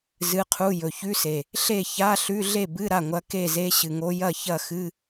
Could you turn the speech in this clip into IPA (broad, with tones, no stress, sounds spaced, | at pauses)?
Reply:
z ɨ˧˥˧ qʰ u˧˥˧ j ɵ˨˩ ç ʉ˧˥˧ s e˨˩ | ɬ e˥˨ ç a˧˥˧ ɬ ʉ˧˥˧ ɮ e˥˨ b ɨ˧˥˧ ɾ a˥˨ ŋʷ ɐ˧˥ k e˥˨ z e˧˥ ɕ ɨ˨˩ ŋ o˧˥ j ɐ˥˨ ç ɐ˥˨ x ɨ˧˥˧